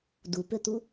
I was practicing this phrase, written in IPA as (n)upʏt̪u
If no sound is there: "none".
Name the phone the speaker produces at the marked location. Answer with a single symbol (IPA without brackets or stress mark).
d